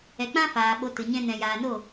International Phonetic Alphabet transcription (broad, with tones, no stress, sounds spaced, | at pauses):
ɛ˨ k͡p ã˦ f aː˨ ɓ o˨˦ t ɨ˨ ɲ ɛ̃˦ n ɛ̃˧ j aː˧ n o˦˨